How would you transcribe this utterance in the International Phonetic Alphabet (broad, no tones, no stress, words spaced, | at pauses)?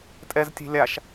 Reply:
tʼɛztʲe̤ lʲaʃ